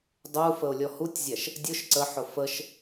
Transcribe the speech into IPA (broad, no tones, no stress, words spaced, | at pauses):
dˤu fəʊ̯lʲɔhutʲzʲæʃ | dʲʊʃ ǀəħʊ fəʃ